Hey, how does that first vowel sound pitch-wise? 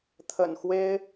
low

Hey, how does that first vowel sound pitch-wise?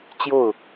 falling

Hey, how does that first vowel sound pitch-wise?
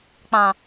low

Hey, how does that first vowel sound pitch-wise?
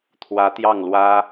rising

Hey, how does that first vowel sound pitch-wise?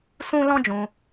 high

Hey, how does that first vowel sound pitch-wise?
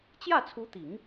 falling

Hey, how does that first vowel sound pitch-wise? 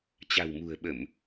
low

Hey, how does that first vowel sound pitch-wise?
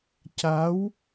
rising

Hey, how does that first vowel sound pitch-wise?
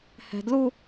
high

